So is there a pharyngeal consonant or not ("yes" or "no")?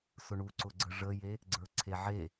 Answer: yes